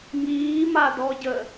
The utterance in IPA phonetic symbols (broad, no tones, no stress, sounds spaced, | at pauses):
ŋ iː m a d ɔ ɟ ə